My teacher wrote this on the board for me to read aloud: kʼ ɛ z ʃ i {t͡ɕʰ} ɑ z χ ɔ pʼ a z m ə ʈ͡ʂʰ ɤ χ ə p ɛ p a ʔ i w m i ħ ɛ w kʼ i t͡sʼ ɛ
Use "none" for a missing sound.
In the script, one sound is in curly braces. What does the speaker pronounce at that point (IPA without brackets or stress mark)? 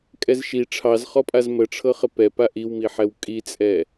ʈ͡ʂʰ